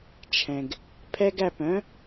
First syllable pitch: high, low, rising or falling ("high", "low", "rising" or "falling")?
low